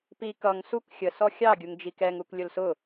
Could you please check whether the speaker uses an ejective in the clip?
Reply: no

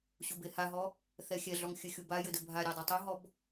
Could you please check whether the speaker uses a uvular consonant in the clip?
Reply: no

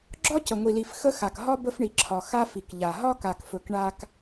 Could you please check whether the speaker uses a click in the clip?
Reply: yes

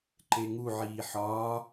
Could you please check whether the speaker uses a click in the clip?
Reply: yes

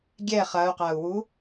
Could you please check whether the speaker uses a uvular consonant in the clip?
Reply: yes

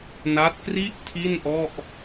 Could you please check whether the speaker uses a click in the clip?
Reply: no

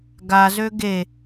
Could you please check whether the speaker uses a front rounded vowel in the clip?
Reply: yes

